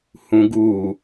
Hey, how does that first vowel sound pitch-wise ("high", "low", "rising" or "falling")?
low